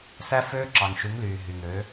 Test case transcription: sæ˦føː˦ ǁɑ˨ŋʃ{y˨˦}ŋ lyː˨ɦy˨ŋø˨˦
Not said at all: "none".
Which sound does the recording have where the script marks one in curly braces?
y˨˦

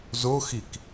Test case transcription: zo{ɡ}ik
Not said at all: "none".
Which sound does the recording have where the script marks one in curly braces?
x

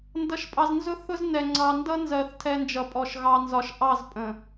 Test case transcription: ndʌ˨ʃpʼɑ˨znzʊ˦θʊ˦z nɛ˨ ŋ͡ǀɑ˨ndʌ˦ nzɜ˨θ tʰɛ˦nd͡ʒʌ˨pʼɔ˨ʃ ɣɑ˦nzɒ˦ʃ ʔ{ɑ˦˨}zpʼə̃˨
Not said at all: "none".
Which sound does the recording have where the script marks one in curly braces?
ɑ˦˨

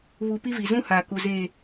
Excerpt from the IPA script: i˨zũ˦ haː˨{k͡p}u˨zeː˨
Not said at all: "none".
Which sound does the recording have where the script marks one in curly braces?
k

